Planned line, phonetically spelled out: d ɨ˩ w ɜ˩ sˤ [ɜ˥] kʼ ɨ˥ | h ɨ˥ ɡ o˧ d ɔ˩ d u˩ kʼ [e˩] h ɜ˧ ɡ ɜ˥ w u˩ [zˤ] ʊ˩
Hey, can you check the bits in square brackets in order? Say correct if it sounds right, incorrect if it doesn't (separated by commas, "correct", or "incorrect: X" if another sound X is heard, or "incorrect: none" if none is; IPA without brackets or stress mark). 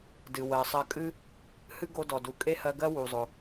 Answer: incorrect: ɜ˧, incorrect: e˥, correct